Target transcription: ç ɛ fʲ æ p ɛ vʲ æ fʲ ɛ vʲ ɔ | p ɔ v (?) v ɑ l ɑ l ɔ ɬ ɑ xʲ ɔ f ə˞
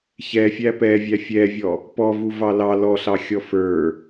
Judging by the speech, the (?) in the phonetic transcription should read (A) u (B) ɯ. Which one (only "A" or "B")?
A